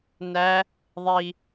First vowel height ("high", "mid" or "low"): low